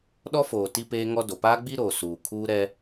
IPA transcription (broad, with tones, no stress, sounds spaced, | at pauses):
ɗ ɔ˦ f oː˨ t i˦ p eː˦ ŋ ɔ˦ d o˨ p aː˦ ɡ͡b i˦ ɾ oː˨ s uː˨ kʰ uː˦ ɾ ɛ˦